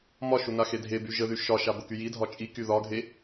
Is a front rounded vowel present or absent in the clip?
present